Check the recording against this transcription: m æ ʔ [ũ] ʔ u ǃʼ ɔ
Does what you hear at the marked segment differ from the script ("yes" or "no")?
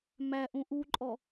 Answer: no